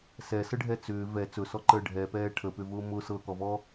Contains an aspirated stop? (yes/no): yes